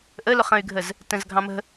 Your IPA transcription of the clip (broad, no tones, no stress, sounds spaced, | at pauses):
ʔ ə l ʊ χ ə̃ y̯ ɡʱ ə z | t ə̃ z ɡʱ ɑ̃ m ə̤